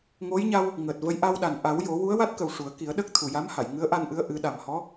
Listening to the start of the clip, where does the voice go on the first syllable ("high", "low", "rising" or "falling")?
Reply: rising